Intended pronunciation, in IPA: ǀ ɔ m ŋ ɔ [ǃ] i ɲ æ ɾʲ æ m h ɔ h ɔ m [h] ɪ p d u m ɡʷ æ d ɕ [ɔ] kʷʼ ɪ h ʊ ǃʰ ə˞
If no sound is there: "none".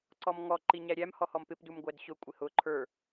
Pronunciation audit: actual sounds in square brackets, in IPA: ǃ, p, ʊ

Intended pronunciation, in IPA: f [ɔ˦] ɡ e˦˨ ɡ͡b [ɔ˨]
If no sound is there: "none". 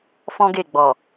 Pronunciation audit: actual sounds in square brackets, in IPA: ɔ̃˦, ɔ˨

